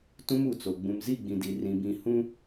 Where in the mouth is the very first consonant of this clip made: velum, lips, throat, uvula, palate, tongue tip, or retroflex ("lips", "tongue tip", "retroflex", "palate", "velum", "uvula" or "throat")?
tongue tip